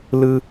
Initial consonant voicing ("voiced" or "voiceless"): voiced